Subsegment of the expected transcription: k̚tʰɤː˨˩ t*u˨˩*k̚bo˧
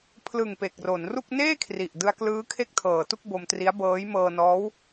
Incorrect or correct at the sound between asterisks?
incorrect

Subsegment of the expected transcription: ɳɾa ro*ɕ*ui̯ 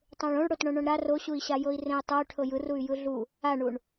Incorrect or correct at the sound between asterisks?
correct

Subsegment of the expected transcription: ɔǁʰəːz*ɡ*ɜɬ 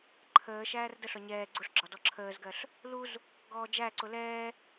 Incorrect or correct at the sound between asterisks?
correct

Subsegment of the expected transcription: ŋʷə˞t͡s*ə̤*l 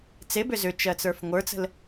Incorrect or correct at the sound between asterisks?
correct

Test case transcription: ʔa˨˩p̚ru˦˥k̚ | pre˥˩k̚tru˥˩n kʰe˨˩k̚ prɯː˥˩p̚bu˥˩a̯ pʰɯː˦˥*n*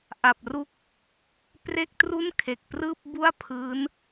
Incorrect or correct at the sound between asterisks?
correct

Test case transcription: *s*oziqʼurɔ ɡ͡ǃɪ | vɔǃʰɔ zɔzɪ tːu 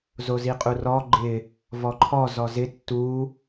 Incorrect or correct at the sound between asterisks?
incorrect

